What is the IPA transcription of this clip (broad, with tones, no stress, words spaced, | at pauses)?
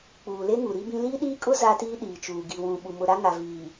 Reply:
k͡puː˨le˦ŋu˨ ɾi˦bĩ˦ liː˦ɗiː˦kʼʊ˦ za˦tiː˦ ɗiː˨t͡ʃuː˨ ɡi˨wũ˨ɓu˨ mʊ˨ɾa˦ŋa˨viː˨